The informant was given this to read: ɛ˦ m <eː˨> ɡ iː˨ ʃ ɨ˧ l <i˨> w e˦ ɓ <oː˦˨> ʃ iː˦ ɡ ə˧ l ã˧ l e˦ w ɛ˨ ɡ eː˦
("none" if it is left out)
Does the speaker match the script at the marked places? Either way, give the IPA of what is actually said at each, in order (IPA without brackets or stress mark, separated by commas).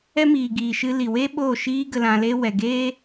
iː˨, i˨, oː˦˨